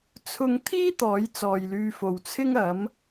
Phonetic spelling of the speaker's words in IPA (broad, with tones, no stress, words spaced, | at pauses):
t͡sʰʊ˧ŋ t̪ʰiː˥ t̪ɔː˨˥jt͡sɔː˨jlyː˧fo˨w t͡sʰɪ˥ŋɐ˨˥m